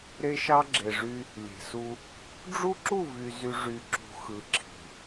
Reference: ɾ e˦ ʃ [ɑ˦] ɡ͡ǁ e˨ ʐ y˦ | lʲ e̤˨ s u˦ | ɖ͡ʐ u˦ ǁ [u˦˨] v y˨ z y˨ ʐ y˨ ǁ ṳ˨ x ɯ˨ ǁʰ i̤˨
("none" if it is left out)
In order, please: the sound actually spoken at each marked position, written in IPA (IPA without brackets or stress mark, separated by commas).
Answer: ɑ˦, u˦˨